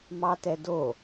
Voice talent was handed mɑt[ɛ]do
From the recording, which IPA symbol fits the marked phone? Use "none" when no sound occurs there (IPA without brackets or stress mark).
ɛ